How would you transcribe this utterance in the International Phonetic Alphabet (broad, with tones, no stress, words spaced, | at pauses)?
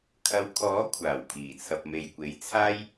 kʰɐ˨˧wkʰɔː˨˥ kʷʰaː˨˩w pʰiː˨˩t͡sʰɐ˨p̚me˨jkʷe˨˥j t͡sʰaː˥j